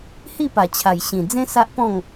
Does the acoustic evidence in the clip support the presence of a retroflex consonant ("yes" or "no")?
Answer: no